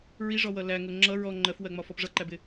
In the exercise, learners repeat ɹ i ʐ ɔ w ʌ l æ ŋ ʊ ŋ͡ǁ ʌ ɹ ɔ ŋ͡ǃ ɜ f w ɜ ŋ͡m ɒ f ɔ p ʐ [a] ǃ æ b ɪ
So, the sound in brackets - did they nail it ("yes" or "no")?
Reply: no